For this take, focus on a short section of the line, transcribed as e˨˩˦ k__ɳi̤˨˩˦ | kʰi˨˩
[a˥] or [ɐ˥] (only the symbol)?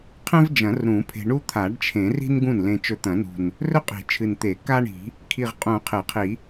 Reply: a˥